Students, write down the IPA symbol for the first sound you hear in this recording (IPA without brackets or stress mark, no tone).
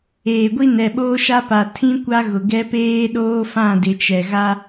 eː